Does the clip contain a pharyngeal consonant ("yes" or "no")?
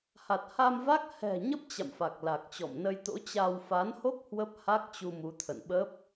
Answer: no